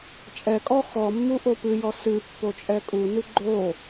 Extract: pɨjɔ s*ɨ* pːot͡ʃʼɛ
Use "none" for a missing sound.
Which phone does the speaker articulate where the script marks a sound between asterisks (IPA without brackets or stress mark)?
ɨ